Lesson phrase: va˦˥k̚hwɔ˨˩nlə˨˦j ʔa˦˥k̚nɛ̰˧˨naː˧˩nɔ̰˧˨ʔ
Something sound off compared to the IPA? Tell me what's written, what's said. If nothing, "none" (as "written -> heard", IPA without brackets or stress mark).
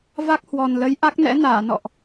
ɛ̰˧˨ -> ɛ̰˧˥